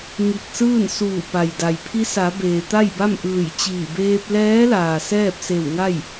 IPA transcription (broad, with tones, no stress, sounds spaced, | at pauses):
ŋ i˧˩ k̚ s ɯː˥˨ n s uː˧˩ p a˩ j d a˩ j pʰ i˧˥ s a˩˧ b eː˩ t̪ a˥˨ j b a˥˨ m ʔ ɯː˧˩ j t͡ɕ iː˧˩ b eː˧ p̚ l ɛː˧˥ l aː˩ s ɛː˥˨ p̚ s e˧˩ w ŋ a˥˨ j